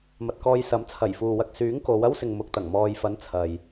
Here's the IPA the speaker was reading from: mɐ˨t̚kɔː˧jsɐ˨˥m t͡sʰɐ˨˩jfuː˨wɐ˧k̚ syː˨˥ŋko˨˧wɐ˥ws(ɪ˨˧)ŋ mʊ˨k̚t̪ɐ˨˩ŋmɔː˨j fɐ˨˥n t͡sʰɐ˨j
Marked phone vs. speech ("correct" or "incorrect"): incorrect